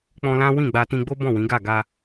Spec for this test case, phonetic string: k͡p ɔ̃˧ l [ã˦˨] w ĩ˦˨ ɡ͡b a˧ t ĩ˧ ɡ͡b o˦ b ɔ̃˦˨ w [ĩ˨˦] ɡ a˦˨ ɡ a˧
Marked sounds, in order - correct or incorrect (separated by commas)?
incorrect, correct